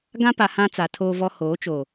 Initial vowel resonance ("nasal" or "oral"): nasal